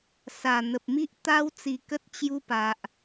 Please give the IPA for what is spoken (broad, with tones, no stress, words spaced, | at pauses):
sa˨˩n̪ə˨p̚ mi˦ʔt̪a˦wt͡si˧kə˦t̚ t͡ɕju˧pa˨ʔ